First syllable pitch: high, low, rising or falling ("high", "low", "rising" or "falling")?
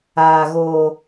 low